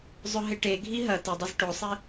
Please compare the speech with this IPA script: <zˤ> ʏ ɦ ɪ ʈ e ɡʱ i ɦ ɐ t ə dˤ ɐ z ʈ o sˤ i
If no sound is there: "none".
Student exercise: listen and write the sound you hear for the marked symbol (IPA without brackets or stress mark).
zˤ